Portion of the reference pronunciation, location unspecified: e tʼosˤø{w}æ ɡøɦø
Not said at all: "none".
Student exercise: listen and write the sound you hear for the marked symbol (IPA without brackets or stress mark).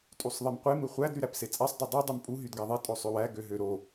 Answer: w